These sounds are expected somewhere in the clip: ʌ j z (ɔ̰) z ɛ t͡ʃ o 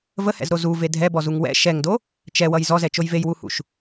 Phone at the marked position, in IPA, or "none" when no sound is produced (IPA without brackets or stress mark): ɔ